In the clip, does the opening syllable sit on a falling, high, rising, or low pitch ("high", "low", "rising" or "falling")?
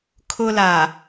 high